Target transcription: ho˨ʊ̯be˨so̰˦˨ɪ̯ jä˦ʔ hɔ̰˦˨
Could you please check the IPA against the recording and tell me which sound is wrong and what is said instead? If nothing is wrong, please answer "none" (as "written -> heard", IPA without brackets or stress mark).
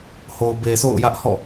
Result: ɪ̯ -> ʊ̯